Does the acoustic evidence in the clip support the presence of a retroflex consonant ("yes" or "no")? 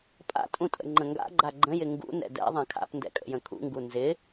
no